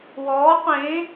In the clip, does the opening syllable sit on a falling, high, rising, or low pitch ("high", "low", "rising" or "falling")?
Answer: rising